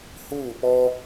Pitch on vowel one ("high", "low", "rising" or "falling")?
falling